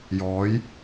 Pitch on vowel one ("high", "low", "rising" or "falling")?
rising